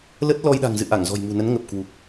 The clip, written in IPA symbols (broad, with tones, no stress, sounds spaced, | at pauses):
l ə˦˥ t̚ l ɔ˧ j ɗ a̤˨˩ ŋ z ɨ̰˧˨ ʔ a˧˩ ŋ z ɔ̤˨˩ j m ṳ˨˩ n ə˨˦ n ŋ ə˨˩ p̚ k w u˨˩ k̚